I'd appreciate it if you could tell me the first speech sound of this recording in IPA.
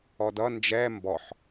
ɔ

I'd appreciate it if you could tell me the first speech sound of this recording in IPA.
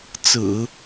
t͡s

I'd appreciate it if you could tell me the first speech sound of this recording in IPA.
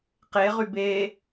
q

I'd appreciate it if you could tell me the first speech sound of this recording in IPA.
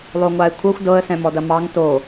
lˠ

